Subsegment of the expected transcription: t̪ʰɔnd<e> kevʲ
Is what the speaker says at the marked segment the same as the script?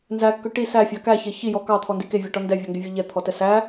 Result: no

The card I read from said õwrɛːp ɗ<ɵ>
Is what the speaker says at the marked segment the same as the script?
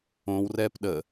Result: no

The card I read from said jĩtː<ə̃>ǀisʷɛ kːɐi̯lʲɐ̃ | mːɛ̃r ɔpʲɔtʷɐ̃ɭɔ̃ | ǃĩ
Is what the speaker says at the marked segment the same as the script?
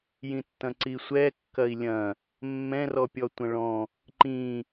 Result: no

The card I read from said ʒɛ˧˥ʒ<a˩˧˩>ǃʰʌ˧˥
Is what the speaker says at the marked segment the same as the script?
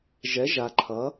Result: no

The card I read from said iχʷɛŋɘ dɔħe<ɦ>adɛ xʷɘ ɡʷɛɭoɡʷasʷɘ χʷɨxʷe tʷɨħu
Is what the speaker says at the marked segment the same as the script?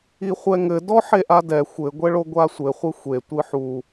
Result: no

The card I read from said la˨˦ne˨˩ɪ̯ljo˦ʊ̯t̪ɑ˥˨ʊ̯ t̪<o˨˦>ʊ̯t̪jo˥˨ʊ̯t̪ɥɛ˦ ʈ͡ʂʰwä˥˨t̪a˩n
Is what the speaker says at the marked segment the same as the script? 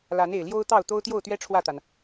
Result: no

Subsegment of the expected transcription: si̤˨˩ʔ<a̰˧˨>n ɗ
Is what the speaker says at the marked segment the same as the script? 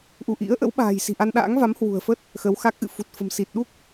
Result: no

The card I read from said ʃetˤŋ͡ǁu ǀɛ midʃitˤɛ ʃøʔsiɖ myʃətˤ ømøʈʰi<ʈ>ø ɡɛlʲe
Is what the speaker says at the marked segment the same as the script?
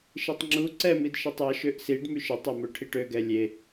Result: yes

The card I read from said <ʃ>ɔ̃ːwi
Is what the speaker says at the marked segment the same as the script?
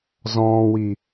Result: no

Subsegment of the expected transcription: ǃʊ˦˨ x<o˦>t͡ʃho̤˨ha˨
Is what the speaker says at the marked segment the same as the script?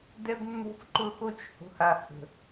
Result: yes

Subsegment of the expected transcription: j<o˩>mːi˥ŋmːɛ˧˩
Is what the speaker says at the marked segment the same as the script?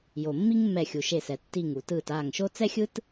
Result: yes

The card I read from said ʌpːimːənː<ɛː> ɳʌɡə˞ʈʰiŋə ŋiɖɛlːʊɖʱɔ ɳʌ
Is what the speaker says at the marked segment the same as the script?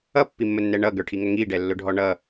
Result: no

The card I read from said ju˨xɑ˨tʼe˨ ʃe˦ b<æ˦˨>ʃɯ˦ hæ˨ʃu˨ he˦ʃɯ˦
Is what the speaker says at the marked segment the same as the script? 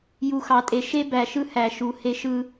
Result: no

